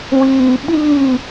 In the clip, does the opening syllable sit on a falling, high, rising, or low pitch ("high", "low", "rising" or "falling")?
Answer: low